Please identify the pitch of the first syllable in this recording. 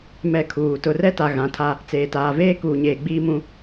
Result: falling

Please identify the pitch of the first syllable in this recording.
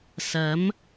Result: rising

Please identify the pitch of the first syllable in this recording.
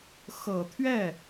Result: low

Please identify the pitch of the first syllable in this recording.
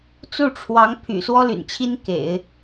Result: falling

